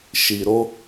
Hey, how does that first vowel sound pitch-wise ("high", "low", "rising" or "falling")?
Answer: low